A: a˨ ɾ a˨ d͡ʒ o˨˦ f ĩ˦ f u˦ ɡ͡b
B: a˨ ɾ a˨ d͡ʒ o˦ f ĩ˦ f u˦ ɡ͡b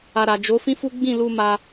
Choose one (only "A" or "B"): A